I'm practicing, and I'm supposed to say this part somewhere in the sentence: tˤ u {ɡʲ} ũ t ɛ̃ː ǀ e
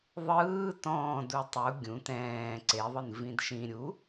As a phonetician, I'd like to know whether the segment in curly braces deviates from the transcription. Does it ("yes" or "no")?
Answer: no